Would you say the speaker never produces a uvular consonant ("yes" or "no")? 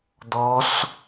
yes